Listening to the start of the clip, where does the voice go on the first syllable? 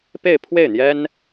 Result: falling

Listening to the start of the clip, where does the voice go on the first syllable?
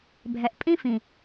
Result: low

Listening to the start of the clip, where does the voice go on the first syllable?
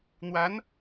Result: rising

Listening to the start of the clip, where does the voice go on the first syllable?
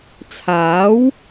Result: rising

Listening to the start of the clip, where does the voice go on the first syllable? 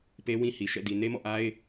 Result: high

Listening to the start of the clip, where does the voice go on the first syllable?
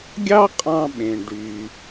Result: high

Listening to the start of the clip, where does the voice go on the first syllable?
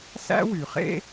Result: high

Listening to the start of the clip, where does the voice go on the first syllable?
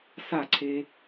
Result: falling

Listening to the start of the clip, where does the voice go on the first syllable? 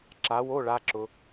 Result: rising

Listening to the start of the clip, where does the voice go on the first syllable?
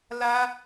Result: high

